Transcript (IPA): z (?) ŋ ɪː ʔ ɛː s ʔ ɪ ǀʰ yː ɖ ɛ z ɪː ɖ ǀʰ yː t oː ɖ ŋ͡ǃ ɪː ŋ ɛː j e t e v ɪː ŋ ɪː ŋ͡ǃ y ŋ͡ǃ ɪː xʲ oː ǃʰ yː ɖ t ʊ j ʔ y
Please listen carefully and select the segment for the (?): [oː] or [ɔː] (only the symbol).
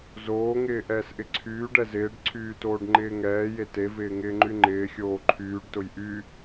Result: oː